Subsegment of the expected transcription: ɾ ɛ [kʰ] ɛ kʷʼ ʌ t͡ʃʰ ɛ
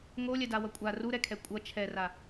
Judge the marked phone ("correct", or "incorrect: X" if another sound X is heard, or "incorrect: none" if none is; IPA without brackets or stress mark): correct